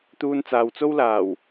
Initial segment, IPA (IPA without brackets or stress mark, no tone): t̪